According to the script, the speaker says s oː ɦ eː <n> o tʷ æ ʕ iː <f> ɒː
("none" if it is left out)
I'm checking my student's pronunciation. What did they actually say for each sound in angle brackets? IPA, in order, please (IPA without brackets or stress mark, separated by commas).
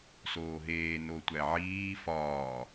n, f